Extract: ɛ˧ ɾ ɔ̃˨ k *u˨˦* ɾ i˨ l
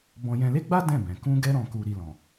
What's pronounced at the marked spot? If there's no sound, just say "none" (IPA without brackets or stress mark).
u˨